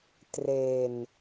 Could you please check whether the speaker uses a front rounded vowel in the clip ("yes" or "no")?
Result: no